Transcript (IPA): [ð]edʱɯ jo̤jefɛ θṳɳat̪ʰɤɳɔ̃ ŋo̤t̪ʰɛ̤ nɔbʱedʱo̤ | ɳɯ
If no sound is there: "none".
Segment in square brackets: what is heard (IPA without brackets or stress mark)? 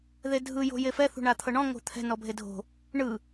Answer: ð